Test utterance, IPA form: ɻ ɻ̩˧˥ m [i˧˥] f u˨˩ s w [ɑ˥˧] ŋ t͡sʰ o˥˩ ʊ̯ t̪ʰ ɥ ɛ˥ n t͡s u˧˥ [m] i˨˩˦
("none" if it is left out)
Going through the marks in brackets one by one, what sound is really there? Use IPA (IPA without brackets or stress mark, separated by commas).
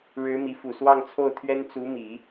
i˧˥, ɑ˥˧, m